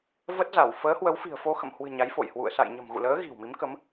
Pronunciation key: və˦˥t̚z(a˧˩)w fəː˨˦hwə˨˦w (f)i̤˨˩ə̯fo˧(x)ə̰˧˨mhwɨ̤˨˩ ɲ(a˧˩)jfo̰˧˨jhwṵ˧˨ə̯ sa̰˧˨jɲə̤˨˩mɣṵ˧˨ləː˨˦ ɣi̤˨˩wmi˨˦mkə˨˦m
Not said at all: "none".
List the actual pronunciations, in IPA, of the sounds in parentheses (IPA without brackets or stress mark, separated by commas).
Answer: a˧˩, f, x, a˨˦